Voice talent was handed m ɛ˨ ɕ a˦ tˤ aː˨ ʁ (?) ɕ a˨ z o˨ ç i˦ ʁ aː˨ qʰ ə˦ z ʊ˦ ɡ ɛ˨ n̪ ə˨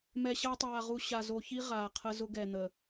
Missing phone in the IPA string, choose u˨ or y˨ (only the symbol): u˨